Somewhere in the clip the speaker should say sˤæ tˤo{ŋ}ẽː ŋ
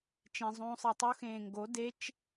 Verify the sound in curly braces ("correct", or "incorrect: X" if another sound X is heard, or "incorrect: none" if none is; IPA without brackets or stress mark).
incorrect: x